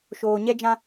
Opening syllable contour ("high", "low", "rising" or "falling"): low